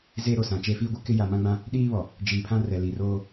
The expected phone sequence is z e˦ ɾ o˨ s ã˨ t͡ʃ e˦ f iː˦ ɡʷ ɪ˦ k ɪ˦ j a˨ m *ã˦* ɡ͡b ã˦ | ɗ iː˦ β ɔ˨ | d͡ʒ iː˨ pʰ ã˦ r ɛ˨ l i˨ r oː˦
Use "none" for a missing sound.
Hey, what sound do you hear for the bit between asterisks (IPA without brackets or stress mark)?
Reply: ã˦